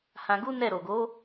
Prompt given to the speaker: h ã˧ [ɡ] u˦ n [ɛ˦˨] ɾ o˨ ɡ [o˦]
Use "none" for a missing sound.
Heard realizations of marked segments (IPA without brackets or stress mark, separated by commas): ɡ, ɛ˦˨, o˨˦